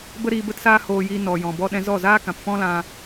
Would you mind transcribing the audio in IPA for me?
b ə˦ ɾ iː˧ b ə˦ t s aː˦ h oː˧ j iː˧ n ɔ˨ j ɔ̃˨ b ɔ˧ ɗ ɛ̃˧ z ɔ˦˨ z aː˦ k ã˨ p f ɔ̃˦ l ã˧

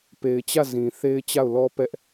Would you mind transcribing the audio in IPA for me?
p e˨ ɪ̯ t͡ɕ ä˦˨ z ĩ˨ θ e˦ ɪ̯ t͡ɕ a˦˨ ʊ̯ l ɔ˦ p ɛ˦ ʔ

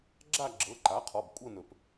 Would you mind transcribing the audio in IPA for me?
ɡ͡ǁ a˥˧ ɡ͡ǁ ɤ˩˧˩ ǃ a˩˥ qʰ ɔ˩˧˩ b kʷʼ ɤ˥˧ n ɵ˨˩˦ p

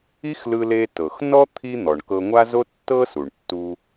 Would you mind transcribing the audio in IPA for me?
i˥ x l ɯ˧ l e˧ t ɤ˩ x n ɔ˥ t̪ʰ i˥ n̪ ɔ˩ ɳ k ɤ˧ ŋʷ a˥ z o˥ tː ɤ˥ s u˩ ɳ tː u˧

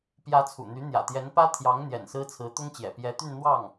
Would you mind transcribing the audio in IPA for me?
p j ä˧˥ t͡sʰ ṵ˨˩ n̪ y˧˥ n̪ j ä̰˨˩ t̪ j ɛ˧˥ n p ä˥ t̪ʰ j ɑ˧˥ ŋ n̪ j ɛ̰˨˩ n s ɹ̩˥ t͡sʰ ɹ̩˧˥ t̪ ʊ˥ ŋ t͡ɕ j ɛ̰˨˩ p j ɛ˧˥ t̪ y˥˧ n n̪ w ɑ˥˩ ŋ

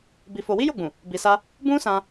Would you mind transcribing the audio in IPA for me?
b i˧ f o˧ w i˦ j o˦˨ ɡ͡b ũ˨ | b i˧ s a˦ | b ũ˦ s ã˧

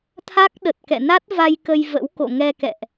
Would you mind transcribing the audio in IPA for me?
t̪ʰ a˦˥ k̚ ɗ ə˨˩ t̚ k ɛ̰˧˨ n a˦˥ t̚ v a˧ j k ə˧ j v ə̰˧˥ w k o̰˧˨ ŋ ɛ˧ k ɛ̰˧˨ ʔ

